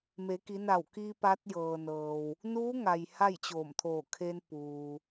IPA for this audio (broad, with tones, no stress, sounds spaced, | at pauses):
m e˩˧ k i˩˧ n a˧˩ w k i˧ p a˧˥ t̚ j ɤː˩ n ɤː˩ w | n uː˧˥ ŋ a˩ j h a˥˨ j t͡ɕ oː˧˩ m t̪ʰ oː˧˩ kʰ e˧ n p uː˩